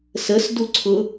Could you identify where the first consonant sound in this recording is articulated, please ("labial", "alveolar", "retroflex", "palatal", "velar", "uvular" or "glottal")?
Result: alveolar